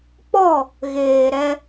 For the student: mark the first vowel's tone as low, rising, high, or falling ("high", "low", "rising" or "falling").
falling